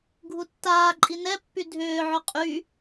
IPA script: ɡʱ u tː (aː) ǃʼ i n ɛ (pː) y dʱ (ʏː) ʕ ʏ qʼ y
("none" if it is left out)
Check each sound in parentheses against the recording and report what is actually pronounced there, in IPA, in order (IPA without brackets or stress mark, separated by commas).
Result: aː, pː, ʏː